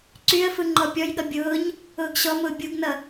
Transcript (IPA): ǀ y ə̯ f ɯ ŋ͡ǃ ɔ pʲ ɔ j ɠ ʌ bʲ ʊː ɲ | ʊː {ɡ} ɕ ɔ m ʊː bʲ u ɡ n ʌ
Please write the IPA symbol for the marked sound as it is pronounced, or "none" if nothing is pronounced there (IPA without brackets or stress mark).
ɡ